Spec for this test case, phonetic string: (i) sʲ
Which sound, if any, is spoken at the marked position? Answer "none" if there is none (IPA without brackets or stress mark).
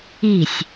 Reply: i